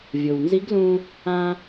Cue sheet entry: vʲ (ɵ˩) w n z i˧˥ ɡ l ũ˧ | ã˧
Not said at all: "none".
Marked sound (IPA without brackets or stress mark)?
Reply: o˩